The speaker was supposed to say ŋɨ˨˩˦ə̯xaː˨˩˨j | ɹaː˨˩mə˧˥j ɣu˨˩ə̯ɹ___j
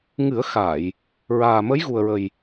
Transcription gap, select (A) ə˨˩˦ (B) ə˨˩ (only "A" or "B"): B